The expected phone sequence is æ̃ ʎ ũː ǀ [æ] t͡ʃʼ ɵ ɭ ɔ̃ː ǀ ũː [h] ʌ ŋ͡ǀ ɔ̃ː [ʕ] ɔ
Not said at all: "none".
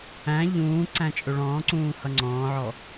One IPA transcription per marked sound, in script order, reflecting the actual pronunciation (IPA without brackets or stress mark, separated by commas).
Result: æ̃, h, ʕ